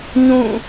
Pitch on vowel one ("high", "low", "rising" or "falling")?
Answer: falling